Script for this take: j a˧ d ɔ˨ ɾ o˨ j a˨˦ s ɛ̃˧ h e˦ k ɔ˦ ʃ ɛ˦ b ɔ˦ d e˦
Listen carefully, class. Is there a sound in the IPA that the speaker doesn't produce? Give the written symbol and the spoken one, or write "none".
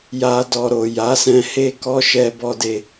none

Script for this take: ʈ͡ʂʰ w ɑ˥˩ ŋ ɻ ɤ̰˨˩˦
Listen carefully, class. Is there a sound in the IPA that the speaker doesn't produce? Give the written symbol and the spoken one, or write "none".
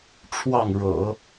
none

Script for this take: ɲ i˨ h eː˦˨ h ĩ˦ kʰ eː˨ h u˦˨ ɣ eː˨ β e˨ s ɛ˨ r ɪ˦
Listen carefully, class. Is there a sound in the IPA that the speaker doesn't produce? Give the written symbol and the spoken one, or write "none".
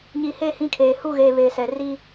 ɪ˦ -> i˦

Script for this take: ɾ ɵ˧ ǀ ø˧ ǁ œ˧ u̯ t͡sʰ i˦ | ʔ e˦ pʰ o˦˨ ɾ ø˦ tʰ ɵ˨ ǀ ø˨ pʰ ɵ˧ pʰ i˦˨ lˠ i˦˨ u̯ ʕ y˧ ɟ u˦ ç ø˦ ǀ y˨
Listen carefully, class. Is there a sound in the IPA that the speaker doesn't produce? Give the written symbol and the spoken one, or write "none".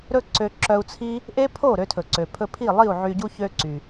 none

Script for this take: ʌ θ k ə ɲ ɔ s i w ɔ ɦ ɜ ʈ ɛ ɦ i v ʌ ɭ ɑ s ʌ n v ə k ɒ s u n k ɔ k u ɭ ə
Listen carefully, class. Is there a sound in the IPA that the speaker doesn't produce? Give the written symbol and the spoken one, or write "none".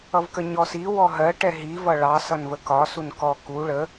θ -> v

